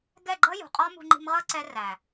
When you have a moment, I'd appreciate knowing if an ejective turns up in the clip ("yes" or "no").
yes